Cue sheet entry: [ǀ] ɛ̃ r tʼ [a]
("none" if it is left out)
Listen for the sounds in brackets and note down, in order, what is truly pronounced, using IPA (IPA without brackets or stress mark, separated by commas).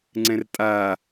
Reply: ŋ͡ǀ, a